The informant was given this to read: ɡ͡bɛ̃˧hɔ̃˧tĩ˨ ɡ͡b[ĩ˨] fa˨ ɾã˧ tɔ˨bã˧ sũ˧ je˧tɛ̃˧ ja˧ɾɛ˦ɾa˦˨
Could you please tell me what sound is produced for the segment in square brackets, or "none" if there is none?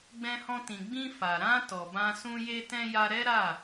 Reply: ĩ˧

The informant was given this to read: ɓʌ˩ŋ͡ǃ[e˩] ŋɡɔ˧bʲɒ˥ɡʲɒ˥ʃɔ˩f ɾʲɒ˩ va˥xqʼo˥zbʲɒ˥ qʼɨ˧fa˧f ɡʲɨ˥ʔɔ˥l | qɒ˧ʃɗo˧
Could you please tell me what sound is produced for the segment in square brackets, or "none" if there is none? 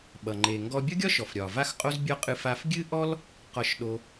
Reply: e˩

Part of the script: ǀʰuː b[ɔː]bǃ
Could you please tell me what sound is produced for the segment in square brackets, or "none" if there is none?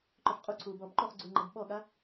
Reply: ɔː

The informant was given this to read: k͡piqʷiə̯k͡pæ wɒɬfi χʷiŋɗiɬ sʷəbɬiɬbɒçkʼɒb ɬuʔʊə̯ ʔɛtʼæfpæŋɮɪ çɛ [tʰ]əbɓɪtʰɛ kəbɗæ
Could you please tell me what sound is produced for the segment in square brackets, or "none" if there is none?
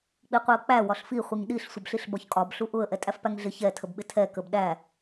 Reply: tʰ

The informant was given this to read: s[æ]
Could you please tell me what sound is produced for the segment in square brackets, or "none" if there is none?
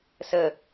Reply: ə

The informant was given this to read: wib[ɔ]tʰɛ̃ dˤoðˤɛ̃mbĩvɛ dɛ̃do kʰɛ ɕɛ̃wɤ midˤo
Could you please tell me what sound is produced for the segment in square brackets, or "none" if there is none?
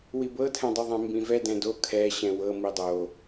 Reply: ɤ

